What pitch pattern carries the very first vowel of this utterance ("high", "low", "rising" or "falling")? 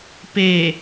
low